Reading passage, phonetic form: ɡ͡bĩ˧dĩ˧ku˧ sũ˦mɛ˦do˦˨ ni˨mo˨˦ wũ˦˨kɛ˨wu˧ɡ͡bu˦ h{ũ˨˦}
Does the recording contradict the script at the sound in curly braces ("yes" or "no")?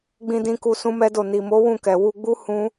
yes